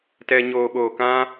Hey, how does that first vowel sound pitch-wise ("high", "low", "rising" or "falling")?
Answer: high